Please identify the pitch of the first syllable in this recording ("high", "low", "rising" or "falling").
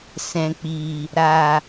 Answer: low